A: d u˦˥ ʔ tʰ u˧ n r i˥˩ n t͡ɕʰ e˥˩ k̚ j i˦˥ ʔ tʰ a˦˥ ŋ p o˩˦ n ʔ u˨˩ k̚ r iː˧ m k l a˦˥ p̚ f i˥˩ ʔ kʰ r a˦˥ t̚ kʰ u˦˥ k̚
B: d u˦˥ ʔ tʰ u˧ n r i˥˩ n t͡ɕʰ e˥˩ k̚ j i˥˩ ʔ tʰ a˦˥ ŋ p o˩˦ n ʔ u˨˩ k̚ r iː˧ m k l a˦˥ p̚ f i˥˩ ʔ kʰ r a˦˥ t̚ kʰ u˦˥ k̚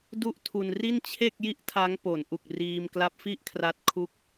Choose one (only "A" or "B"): B